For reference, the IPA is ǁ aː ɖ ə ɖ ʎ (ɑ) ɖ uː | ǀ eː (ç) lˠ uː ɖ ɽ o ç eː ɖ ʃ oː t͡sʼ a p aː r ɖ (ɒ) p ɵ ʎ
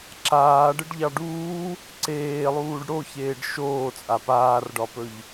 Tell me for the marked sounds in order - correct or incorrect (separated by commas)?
correct, incorrect, correct